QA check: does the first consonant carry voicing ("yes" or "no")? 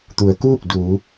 no